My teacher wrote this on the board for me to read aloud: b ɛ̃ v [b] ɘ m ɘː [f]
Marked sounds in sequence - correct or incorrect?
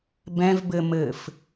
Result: correct, correct

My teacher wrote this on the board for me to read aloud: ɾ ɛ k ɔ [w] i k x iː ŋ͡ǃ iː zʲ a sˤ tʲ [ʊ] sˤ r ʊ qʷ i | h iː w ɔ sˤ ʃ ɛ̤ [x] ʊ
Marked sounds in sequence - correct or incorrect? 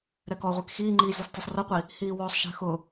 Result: incorrect: ʁʷ, correct, correct

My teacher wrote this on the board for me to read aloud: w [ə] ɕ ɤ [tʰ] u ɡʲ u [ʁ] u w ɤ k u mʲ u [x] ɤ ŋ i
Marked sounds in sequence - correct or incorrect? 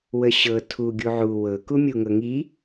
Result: correct, correct, incorrect: ʕ, incorrect: ŋ

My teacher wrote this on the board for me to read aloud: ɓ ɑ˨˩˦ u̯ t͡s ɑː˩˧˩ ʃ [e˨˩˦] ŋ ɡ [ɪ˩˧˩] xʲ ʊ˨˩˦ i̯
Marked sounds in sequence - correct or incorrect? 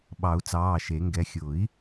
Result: correct, incorrect: ɛ˩˧˩

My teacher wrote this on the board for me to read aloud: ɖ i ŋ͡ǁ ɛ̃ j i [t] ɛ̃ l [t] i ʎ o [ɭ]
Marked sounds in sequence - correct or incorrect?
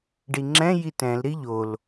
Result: correct, incorrect: ɾ, incorrect: l

